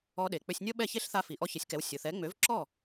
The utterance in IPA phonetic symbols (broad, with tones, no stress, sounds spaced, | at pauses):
ɔ˧ ɗ e˩ k͡p ø˧ sʲ nʲ ɔ˥ ɓ ɛ˥˩ ç e˥ ɬ θ a˧ f i˩ ʔ ɔ˧ ç ɪ˩˥ sʲ k ɛ˩˥ w sʲ ʊ˩ θ ɛ˩˥ ŋ͡m ø˩˥ v ǁ ɔ˥˩